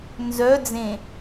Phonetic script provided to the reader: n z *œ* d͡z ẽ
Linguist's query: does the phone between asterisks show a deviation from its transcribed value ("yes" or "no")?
no